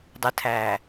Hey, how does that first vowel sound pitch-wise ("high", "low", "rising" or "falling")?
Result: rising